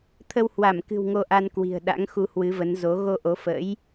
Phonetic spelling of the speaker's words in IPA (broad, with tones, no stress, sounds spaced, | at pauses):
t̪ʰ ə˧ w h w a˧˩ m k ɨ̤˨˩ w ŋ o˧ ʔ a˧ n k w i̤˨˩ ə̯ ɗ a̰˧˥ ŋ x u˧ h w ɨ˨˦ v ə˨˦ n z o˨˦ ɣ o˧ ʔ o˨˦ f ə̰˧˥ j